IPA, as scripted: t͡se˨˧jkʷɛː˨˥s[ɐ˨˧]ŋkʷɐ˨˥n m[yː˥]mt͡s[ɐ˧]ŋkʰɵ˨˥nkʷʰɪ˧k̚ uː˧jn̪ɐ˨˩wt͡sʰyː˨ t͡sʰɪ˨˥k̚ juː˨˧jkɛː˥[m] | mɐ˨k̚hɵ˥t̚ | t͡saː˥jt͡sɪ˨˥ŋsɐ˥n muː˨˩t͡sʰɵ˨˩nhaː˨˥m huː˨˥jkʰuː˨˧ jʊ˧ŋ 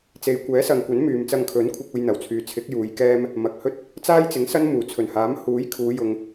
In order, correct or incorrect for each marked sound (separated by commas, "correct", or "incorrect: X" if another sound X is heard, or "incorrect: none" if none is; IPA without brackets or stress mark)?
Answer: incorrect: ɐ˨, incorrect: yː˨, correct, correct